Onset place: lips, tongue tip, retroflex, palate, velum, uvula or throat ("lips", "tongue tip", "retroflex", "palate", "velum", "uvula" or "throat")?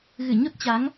velum